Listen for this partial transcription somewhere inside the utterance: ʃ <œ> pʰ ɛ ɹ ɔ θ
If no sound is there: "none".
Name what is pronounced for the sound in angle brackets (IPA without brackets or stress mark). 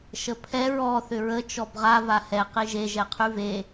ə